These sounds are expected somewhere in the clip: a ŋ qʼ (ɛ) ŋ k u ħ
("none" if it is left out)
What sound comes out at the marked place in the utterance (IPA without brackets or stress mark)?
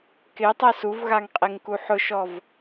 e